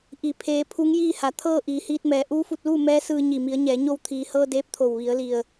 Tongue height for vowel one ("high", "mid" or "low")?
high